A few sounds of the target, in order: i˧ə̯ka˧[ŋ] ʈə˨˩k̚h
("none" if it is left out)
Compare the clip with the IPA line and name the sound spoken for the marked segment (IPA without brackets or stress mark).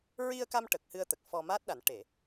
m